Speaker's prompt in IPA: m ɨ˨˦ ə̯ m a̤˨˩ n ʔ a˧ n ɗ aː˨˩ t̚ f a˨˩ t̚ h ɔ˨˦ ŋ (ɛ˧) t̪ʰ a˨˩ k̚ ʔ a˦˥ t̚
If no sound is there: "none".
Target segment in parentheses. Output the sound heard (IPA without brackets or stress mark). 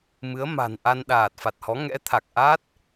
ɛ̰˧˥